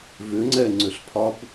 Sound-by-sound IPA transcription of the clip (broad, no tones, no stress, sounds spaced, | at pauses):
v ʏ ŋ͡ǀ ɛ ŋ͡ǀ ʏ ɬ pʰ ɒ b